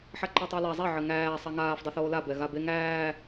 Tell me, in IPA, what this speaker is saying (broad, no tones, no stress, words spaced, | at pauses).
ħaǃɛtˤala zˤɛ ʕɘŋæː sˤaŋaːfdˤɘ θoːla bɛɣabe ŋæː